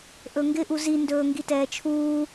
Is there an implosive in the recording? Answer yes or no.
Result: no